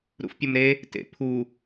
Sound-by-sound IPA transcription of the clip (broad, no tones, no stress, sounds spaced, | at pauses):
ɾ ṵ f pʲ ʊ m ɾ e | t ḛ pʰ u